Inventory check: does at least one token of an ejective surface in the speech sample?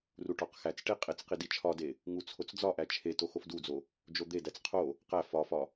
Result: yes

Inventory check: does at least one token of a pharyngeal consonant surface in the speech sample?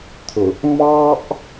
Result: no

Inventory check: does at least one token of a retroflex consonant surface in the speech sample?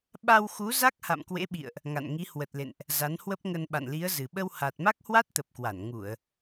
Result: no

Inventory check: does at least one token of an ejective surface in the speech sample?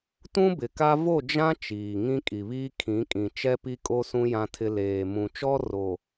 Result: yes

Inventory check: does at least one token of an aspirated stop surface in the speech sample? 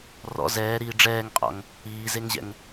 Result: no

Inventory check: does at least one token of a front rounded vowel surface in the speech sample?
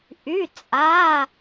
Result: yes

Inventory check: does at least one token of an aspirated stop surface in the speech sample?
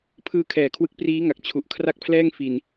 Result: yes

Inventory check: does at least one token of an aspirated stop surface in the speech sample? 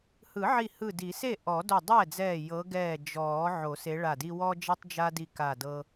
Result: no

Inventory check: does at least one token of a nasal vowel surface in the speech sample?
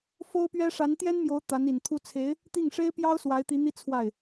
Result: no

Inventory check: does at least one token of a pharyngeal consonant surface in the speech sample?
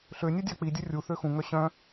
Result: no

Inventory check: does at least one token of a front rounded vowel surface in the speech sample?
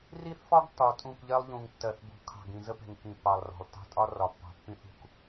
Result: no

